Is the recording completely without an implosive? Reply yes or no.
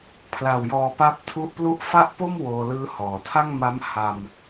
yes